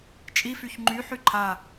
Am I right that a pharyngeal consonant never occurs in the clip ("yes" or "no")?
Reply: no